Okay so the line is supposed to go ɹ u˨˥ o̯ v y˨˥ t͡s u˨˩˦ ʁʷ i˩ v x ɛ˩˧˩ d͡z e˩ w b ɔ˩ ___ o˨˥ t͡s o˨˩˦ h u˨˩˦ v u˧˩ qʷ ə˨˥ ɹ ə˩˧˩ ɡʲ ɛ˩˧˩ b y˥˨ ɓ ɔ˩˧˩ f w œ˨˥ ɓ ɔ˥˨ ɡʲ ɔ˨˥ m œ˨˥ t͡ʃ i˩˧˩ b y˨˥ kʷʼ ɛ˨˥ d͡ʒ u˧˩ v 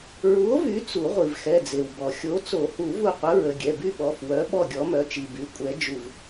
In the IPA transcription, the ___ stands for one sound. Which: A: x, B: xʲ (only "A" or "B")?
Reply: B